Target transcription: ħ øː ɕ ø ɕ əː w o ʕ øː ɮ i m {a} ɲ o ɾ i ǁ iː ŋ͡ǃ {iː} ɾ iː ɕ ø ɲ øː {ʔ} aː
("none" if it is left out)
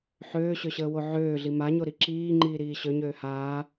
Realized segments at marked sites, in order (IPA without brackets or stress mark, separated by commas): a, iː, h